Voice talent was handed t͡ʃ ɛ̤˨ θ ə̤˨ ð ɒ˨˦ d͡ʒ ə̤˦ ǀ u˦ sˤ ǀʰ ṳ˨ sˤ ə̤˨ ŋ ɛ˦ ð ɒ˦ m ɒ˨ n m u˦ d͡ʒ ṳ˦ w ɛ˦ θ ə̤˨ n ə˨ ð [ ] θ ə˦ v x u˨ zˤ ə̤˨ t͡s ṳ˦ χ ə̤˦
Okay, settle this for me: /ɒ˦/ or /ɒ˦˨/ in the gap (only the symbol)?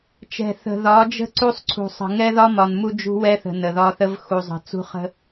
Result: ɒ˦